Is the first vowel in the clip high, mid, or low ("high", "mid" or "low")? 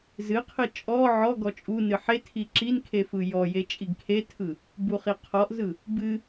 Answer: high